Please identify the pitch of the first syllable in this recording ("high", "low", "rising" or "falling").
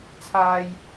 high